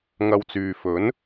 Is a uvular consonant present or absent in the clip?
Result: absent